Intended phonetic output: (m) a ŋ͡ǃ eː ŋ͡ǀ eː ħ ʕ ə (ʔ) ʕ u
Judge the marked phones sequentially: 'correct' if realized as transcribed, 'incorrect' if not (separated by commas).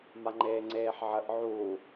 correct, correct